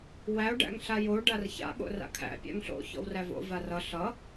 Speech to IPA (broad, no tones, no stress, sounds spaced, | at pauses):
w æ o̯ ɖ æ̰ ŋ ɬ a j o ɖ a r ç a̰ ɠ o̰ r a̰ kʰ æ̰ pʲ æ̰ ŋ ɬ o̰ ç ɔ̰ w r æ v o̰ v a r ʌ ɬ ʌ